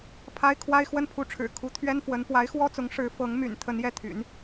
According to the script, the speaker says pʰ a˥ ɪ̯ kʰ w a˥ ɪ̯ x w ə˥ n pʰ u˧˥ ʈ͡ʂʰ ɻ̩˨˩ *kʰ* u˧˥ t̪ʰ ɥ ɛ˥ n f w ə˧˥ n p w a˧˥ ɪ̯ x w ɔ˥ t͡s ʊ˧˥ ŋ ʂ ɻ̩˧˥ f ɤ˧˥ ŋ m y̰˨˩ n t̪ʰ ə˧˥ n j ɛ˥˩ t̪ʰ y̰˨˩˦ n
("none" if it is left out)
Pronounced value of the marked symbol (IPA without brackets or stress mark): kʰ